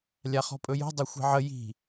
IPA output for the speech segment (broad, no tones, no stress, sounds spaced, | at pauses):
lʲ a χ ɔ̤ pʼ ɵ j o̤ dˤ ɘ xʷ i̤ ʕ ə j i̤